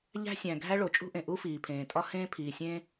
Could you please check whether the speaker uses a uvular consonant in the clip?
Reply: no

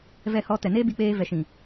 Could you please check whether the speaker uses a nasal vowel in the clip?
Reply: yes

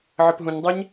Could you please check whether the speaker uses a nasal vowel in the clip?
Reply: yes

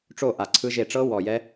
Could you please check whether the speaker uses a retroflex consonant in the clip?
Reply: yes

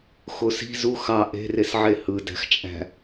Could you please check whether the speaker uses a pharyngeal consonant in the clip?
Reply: yes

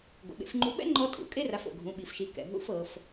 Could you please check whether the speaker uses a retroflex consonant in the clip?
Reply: no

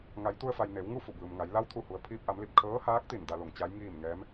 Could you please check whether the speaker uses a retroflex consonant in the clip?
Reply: no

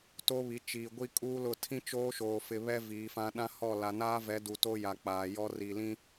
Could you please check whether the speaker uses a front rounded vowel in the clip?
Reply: no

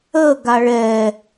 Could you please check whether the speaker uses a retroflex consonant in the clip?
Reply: yes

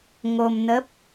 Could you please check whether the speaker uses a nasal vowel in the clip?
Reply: no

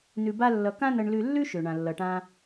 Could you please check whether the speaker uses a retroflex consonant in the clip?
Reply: yes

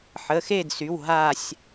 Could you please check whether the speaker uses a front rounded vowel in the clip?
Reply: yes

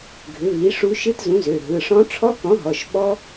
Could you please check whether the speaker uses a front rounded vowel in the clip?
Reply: yes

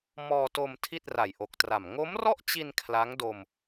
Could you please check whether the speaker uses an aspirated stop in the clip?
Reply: yes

